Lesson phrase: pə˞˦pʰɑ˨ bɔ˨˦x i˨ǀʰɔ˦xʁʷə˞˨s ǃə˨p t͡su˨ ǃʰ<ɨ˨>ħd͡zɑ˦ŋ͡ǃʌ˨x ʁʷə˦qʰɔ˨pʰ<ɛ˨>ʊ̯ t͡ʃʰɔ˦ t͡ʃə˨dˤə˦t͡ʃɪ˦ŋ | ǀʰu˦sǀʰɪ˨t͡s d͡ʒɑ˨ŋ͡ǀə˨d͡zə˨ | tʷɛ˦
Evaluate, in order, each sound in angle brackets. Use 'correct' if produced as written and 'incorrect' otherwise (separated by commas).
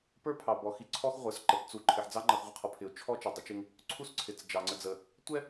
incorrect, incorrect